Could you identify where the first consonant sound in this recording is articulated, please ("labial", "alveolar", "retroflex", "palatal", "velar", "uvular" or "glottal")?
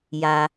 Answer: palatal